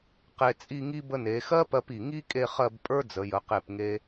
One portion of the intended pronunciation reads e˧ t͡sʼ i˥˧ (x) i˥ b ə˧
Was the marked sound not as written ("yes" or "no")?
yes